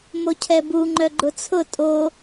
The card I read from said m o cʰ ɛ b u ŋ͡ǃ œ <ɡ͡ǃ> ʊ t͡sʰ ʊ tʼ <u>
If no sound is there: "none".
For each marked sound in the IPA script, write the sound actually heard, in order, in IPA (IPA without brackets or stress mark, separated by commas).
ɡ͡ǃ, o